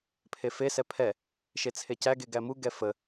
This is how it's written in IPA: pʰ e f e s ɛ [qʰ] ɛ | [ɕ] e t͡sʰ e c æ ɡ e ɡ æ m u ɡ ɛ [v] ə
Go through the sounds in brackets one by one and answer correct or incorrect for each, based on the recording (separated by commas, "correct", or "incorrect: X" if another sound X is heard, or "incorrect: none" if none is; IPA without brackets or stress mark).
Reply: incorrect: pʰ, incorrect: ʃ, incorrect: f